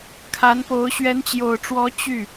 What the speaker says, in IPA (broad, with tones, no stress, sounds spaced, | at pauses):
kʰ a˧˥ n p o˧˥ ʊ̯ ɕ ɥ ɛ˧˥ n t͡ɕ j o˨˩ ʊ̯ ʈ͡ʂ w ɔ˧˥ t͡ɕ y˥˩